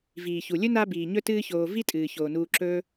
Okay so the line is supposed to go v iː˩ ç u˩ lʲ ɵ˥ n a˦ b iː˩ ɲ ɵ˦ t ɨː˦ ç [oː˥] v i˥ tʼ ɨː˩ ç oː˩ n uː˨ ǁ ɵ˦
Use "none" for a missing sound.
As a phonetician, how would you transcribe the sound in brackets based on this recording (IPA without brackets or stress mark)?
oː˨